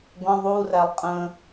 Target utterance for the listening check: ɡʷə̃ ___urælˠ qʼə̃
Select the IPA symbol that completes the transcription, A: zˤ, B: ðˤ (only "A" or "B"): B